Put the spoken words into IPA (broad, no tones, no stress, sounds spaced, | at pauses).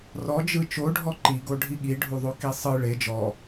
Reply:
r ɔ d͡ʒ ɯ t͡ʃ o ɖʱ ɔ ǃ i ɡ o ɖʱ i ɠ i ɖʱ u ðˤ o k i sˤ ɯ ɭ e d͡ʒ ɔ